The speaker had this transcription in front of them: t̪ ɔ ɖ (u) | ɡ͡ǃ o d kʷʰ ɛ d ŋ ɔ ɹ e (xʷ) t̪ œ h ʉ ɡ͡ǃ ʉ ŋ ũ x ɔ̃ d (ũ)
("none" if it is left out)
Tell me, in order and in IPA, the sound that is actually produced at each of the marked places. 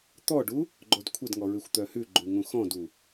u, xʷ, u

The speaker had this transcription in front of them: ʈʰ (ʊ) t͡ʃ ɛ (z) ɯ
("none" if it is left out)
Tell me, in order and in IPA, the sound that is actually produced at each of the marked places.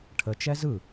ə, z

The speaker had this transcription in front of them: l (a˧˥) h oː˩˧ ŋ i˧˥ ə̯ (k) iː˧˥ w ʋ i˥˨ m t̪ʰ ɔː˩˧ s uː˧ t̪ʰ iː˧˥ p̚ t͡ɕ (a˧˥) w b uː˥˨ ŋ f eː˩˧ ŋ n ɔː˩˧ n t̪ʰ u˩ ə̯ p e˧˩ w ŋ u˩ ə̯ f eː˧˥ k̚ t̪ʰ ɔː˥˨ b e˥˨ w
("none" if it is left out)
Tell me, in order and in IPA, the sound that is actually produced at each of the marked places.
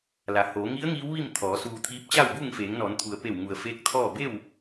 a˩, ŋ, a˥˨

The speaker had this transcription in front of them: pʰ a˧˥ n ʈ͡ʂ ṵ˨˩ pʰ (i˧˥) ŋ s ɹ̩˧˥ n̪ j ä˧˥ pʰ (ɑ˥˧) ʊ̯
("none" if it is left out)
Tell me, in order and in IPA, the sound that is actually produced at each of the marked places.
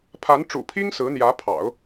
i˥, ɑ̰˨˩˦

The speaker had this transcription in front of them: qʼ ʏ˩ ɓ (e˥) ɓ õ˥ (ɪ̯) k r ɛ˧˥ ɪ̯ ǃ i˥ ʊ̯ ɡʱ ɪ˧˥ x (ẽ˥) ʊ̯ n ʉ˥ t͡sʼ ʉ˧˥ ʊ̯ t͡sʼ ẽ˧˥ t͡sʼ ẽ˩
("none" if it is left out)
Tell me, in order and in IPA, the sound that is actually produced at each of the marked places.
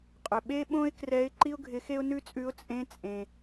e˥, ɪ̯, e˥

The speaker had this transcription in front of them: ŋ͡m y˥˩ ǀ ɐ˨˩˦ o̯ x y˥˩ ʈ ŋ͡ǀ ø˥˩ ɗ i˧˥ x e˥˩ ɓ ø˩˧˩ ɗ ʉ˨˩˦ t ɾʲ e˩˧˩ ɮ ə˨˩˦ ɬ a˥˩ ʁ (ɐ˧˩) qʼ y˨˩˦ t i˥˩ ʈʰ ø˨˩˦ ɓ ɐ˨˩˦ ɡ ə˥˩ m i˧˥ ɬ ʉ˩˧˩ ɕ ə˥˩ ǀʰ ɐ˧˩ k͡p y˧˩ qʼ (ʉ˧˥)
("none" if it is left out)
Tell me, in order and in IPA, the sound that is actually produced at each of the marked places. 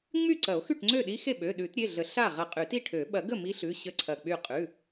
ɐ˧˩, ʉ˩˧˩

